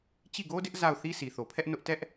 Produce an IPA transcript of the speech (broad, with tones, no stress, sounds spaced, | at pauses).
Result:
t͡ɕ i˦˨ ɡ o˦ d ɪ˦ ʔ z a˦˨ ʊ̯ θ i˦ s i˨ θ o˨ pʰ ɛ˦ ʔ n ʊ˦ ʔ t ɛ˦ ʔ